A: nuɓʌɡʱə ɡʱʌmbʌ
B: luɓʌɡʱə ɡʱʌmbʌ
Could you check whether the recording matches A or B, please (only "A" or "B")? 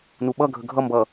A